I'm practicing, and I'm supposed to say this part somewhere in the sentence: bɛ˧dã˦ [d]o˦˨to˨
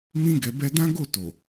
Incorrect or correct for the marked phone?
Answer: incorrect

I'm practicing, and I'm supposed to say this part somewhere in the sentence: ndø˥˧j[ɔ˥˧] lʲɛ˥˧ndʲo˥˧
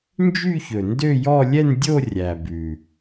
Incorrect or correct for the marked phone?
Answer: correct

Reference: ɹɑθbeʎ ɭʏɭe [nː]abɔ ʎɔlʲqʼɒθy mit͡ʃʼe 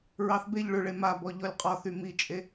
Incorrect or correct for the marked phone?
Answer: incorrect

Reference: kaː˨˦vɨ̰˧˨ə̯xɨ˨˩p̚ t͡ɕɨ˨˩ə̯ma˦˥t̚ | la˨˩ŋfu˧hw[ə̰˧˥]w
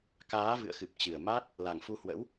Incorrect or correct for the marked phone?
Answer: correct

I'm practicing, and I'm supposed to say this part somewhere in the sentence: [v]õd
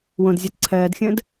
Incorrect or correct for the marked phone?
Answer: incorrect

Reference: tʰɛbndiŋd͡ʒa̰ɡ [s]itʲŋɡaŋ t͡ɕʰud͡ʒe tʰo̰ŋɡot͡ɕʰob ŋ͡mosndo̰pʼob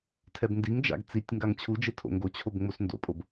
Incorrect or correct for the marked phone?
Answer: incorrect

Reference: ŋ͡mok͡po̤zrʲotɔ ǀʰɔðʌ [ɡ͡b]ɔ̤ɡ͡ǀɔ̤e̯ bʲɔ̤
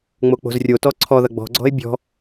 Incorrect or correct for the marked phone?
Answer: correct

